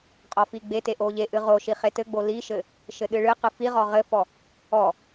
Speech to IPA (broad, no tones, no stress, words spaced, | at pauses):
qʼɔfiɡ͡bete ʔoʎeʔɨ ʁoʃi χetɘɡ͡bo liʃɘ | ʃɘɗɨɭɨqɨ fiʁɔ ʁɘfɔ | ɔ